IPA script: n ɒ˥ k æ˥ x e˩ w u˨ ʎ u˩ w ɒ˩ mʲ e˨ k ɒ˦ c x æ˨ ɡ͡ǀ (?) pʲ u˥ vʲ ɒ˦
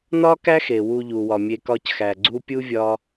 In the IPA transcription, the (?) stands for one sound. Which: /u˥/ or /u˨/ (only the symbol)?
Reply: u˥